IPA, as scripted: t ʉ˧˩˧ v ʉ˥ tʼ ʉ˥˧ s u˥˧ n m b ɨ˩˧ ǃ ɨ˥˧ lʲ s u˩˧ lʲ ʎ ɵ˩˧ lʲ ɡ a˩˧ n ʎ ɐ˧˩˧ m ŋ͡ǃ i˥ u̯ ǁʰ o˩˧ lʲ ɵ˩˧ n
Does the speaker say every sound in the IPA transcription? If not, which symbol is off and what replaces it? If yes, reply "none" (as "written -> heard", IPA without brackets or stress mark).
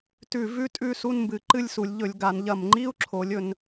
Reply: none